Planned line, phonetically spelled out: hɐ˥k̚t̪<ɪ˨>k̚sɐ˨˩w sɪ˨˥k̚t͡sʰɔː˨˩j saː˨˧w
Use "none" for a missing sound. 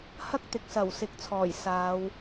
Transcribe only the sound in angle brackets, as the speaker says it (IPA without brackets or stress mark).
ɪ˨